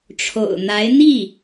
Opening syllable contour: low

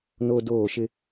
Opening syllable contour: high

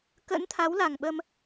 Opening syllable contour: rising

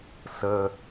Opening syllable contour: low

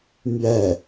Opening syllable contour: falling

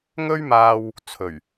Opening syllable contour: high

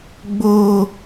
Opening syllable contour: high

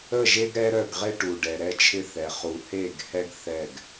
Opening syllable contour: falling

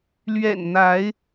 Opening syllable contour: low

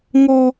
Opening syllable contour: high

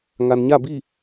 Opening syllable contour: low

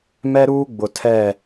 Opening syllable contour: high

